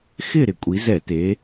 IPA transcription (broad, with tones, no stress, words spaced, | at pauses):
xɪ˦˨ɾɪ˧˩˧ kʷʼi˩˧zɛ˧˩˧te˩˧